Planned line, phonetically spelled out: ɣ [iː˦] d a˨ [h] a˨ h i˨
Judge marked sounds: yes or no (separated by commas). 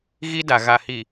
no, no